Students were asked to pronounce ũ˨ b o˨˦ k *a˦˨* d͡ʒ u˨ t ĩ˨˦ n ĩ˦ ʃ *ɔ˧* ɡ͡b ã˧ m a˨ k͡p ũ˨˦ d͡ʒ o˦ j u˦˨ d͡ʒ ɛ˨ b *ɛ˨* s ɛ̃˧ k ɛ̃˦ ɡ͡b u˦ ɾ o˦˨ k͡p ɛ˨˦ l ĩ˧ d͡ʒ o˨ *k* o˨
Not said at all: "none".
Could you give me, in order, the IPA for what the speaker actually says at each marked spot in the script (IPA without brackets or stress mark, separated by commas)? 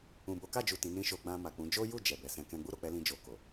a˦˨, o˧, ɛ˨, k